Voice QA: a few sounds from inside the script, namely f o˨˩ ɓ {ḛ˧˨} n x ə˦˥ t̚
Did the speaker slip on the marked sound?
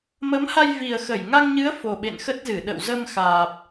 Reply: no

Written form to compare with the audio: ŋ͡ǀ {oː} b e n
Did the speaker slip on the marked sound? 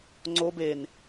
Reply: yes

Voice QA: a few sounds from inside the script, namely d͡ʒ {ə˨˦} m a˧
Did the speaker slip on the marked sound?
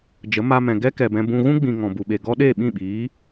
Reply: no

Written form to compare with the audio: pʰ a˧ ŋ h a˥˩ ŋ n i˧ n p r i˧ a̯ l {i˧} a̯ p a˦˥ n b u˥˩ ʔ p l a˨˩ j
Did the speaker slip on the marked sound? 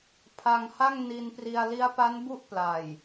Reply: yes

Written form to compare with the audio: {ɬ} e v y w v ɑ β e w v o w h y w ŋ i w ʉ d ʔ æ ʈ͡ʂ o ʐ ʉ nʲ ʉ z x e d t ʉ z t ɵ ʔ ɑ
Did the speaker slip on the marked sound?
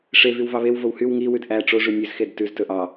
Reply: yes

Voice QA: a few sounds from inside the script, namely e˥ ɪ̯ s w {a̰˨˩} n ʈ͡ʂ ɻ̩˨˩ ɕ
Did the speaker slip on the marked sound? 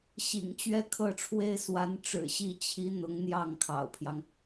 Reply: yes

